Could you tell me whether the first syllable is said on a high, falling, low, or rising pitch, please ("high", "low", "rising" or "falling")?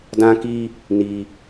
high